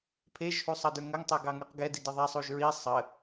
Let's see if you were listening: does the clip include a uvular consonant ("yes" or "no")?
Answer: yes